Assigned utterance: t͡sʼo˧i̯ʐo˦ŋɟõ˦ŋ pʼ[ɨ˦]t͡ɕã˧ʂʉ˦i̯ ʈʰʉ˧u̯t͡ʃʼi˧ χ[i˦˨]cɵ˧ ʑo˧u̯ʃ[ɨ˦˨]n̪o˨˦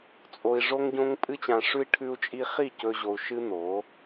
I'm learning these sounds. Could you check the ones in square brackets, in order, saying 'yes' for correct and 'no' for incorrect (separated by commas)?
yes, yes, no